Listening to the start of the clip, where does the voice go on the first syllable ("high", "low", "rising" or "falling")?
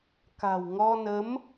low